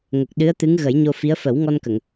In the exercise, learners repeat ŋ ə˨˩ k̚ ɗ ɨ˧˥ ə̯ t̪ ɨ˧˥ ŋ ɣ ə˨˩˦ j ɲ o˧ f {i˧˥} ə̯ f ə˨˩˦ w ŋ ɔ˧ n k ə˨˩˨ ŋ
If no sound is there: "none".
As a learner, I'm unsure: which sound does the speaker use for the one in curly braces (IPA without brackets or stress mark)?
i˧˥